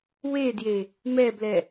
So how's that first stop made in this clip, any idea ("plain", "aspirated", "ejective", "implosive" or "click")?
plain